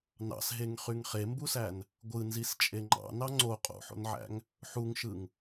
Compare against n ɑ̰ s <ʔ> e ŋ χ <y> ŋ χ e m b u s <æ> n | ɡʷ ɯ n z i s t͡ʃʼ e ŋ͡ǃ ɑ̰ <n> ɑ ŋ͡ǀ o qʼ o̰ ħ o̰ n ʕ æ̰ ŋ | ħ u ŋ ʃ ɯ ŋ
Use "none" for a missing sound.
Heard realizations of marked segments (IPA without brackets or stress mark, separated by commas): ɦ, y, æ, n